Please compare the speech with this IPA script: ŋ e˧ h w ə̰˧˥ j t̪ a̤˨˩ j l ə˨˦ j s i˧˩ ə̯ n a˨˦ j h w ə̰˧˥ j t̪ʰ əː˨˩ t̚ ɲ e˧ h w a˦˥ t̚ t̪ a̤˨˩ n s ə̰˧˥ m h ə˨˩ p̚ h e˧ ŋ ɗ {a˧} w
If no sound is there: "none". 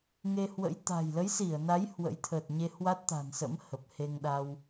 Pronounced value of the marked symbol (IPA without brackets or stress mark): a˧